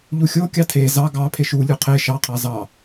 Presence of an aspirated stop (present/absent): present